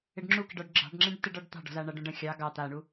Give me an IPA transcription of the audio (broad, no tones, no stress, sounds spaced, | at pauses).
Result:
ɪ ɖ ŋ͡ǁ u k ɪ ɖ ɔ ɖ ɡ͡ǁ ɑ̤ ɖ ŋ͡ǁ ẽ ɖ t ɪ ɖ ɔ ɖ t̪ ɑ̤ ɖ ɔ̤ z a ɳ a ɖ õ ɖ ə̃ xʲ ɑ ɡ ɑ t̪ a ɳ u